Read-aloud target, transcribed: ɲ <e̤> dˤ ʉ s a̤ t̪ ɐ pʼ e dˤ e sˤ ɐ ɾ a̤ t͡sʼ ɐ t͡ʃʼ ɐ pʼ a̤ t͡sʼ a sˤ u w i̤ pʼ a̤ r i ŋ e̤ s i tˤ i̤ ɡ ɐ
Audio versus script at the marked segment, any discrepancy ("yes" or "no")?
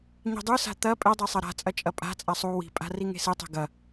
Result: yes